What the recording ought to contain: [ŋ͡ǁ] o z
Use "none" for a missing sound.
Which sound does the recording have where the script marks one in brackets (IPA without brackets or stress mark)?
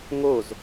ŋ